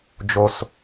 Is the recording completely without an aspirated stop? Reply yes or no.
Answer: yes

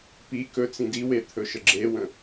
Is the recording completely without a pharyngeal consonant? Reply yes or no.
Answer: yes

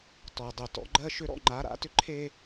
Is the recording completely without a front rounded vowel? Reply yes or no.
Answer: no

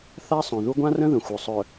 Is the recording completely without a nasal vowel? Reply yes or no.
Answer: no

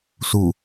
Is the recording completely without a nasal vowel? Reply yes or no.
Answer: yes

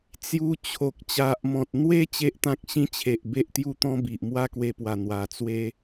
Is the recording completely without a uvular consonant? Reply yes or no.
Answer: yes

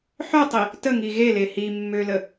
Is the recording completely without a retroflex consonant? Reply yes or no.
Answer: yes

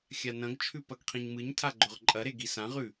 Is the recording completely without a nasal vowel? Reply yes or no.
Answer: no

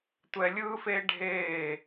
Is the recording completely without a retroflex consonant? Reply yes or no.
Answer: no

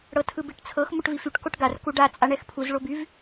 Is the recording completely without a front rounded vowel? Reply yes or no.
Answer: no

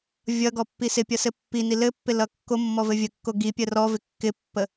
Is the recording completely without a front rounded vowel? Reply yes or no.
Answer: yes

